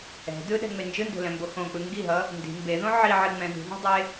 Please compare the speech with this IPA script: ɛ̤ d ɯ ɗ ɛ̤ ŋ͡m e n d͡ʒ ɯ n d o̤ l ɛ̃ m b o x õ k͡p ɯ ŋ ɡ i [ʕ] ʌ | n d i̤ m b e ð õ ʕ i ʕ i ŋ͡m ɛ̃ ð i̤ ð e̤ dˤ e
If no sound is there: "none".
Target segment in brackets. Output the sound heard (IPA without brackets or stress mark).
ɦ